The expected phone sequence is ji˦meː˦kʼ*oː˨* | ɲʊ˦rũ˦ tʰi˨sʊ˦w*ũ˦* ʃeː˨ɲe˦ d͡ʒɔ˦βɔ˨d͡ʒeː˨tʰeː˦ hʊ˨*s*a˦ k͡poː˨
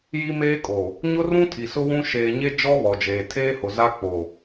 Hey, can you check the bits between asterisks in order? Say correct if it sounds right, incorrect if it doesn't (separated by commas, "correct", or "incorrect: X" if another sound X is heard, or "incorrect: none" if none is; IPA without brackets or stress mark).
correct, correct, incorrect: z